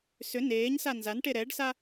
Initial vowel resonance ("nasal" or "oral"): oral